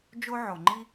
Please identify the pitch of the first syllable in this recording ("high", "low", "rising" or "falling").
high